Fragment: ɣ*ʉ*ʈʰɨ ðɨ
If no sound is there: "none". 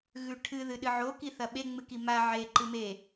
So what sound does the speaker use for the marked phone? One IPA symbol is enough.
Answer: ʉ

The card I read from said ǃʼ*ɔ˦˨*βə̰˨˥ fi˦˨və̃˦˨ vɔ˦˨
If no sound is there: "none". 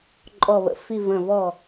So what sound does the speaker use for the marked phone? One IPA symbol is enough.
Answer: ɔ˦˨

